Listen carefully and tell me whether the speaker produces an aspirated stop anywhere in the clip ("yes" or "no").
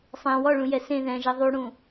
no